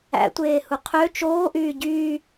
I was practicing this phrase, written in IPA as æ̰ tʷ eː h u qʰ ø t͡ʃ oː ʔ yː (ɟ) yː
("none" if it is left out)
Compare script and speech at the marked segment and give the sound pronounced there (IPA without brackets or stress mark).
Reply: ɟ